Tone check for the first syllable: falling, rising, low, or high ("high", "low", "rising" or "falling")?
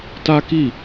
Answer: high